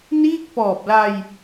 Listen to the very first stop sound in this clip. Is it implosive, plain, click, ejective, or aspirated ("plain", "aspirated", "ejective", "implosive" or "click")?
plain